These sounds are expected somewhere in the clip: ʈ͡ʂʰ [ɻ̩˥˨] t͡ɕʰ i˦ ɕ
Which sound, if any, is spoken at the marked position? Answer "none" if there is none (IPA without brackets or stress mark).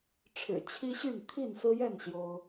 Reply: ɻ̩˨˩